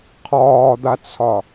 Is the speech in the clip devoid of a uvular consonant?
no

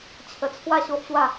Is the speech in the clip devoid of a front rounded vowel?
yes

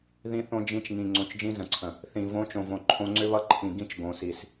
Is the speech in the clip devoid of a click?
no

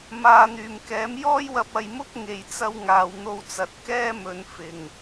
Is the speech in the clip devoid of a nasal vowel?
yes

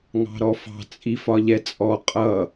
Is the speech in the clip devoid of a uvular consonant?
no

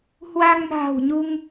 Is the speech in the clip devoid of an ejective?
yes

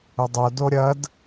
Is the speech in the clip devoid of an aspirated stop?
yes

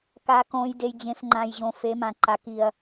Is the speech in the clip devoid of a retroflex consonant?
yes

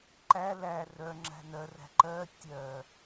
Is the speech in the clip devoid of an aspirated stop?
yes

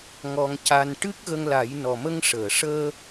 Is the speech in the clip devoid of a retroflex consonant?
no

